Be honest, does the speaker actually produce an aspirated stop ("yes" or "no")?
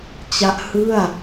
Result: no